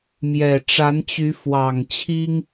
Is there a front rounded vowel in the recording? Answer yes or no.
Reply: yes